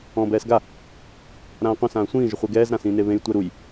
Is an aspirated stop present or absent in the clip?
absent